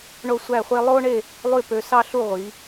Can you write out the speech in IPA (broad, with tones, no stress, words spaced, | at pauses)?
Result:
ɳo˥˧sʷæ˥˧χʷe˥ lˠo˥ɳe˥˧ | lˠy˥˧ pø˧sɑ˥ɬu˥˧ ʁʷi˩˧